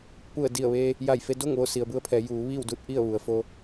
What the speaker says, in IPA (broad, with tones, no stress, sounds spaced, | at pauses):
p u˧˩ ə̯ d i˧˩ ə̯ ʋ eː˧ | j a˧˩ j f e˧ d o˥˨ ŋ ʋ o˥˨ s i˩ ə̯ b u˧ ə̯ pʰ ɛː˩˧ j uː˩˧ ʋ iː˥˨ w d u˧˥ t̚ ʔ i˥˨ ə̯ ʋ u˩ ə̯ f o˧